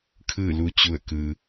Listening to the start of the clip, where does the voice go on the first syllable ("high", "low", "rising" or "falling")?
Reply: falling